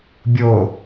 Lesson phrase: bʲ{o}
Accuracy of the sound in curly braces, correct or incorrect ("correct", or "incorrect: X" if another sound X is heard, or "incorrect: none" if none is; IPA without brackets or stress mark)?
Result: correct